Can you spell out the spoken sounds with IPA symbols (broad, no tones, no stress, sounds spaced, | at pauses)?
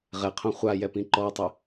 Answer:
ʁ ɛ qʰ õ χʷ a j ɛ p ĩ ǃ ɔ tˤ ɛ